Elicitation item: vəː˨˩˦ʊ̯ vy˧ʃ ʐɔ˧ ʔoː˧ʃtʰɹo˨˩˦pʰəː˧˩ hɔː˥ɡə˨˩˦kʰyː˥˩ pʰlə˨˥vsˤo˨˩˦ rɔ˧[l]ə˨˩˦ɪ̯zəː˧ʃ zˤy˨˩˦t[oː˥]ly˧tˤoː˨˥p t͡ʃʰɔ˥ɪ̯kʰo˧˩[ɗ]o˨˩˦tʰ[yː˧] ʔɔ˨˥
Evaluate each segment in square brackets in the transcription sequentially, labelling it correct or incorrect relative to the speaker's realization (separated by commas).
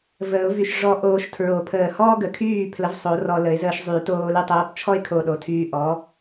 correct, incorrect, correct, correct